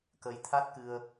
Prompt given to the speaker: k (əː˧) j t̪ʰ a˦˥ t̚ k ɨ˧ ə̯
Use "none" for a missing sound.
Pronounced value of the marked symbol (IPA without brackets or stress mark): ə˧